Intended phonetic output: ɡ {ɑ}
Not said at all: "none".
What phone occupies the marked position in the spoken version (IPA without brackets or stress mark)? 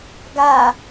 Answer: a